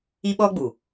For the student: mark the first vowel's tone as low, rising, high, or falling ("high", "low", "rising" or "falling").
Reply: high